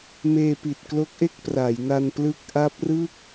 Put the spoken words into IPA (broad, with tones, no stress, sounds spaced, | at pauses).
m eː˧ p i˨˩ t̚ k l o˦˥ k̚ ʔ e˥˩ k̚ p r a˩˦ j n a˧ n p l ɯ˦˥ k̚ ʔ a˦˥ p̚ r ɯ˥˩ k̚